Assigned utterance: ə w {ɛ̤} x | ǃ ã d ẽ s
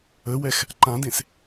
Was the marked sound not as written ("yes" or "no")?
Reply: yes